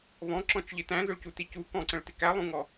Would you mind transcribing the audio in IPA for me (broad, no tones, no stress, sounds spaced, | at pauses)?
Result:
β ɔ̃ ǁ ɔ̃ t͡ʃ ʎ ɪ t æ̃ z ʊ ɭ c u t i c u k ɔ̃ ǀ ə̃ ɭ t ɪ k æ lˠ ũ ŋ ɔ